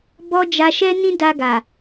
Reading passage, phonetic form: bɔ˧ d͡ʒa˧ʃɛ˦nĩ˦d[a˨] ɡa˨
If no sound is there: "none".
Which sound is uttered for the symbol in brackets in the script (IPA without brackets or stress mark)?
a˧